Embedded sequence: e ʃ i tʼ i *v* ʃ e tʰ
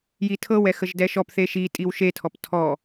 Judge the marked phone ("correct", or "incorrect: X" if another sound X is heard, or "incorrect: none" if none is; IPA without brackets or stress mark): incorrect: w